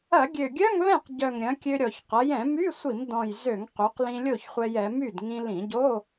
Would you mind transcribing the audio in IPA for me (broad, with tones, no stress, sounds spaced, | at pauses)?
ɐ˧˩˧ ɡʲ ø˨˩ ɡʲ œ˧˥˧ ŋ β ɛ̃˥˩ q ɟ œ˨˩ ŋ ɾʲ ɐ̃˩˧ kʲ ø˧ ɾʲ ɔ˨˩ ç q ɐ˩˧ j ɛ̃˧˩˧ m y˧˥˧ sʷ i˧˩˧ m d ɔ̃˨˩ j z ø˧˩˧ ŋ q y˩˧ q l ĩ˧ lʲ o˥˩ ç χʷ ɛ˧ j ɛ˩˧ m y˥˩ d ŋ ĩ˧ l ĩ˧˩˧ ɟ o˧˥˧